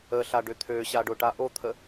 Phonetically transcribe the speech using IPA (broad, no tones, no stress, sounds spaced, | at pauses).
ə ɬ a ɖ ʏ t̪ʰ ø ɕ a ɖ ʊ ʈ a ʔ o t̪ʰ ə